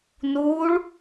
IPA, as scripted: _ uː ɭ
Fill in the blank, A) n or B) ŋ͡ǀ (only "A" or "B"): A